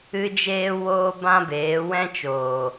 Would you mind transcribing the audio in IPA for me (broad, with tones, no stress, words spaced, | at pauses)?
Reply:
ɨ˦ d͡ʒeː˦woː˦ bã˦beː˨˦wɛ̃˦t͡ʃoː˨